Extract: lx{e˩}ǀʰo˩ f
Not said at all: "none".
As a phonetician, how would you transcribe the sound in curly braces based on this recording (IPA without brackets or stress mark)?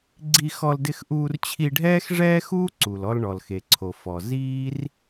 e˩